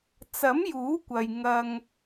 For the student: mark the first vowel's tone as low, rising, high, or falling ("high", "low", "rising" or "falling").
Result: rising